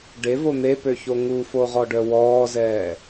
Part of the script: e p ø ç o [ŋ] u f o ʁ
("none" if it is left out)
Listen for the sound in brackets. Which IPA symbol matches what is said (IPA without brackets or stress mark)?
ŋ